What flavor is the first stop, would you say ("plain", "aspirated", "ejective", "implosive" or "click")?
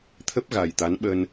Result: aspirated